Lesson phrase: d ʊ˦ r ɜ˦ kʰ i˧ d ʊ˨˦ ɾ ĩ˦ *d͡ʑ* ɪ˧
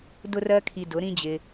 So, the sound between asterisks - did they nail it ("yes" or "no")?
yes